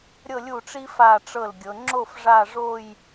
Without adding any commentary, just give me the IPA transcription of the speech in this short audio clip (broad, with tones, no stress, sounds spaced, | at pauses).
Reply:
ɾʲ ɤ˥˧ lʲ u˥˩ ʈ͡ʂ i˥ f a˥˧ ʈ͡ʂ ɤ˥˩ l ɡʲ ɤ˨˦ ŋ͡ǁ o˥˧ f ʐ a˥˧ ʐ o˥˧ j